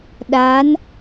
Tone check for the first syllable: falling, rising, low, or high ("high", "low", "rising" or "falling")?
rising